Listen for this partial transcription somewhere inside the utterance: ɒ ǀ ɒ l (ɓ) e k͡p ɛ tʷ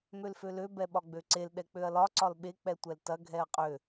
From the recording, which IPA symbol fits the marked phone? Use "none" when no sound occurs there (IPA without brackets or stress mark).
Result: ɓ